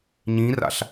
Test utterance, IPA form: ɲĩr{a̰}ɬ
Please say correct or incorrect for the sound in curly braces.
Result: correct